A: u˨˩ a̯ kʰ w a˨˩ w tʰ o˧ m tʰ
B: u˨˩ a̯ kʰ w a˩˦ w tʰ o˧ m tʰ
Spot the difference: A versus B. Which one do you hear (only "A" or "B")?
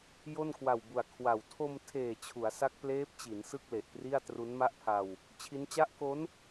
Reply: A